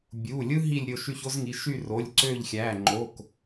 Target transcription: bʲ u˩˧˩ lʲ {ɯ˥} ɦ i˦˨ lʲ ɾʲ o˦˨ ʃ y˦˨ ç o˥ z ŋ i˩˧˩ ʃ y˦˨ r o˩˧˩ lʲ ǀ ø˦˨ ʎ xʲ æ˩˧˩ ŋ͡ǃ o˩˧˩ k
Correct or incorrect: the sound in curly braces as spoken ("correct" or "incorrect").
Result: correct